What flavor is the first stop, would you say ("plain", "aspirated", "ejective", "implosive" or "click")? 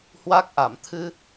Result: plain